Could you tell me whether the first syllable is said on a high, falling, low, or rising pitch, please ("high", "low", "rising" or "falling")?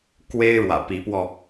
high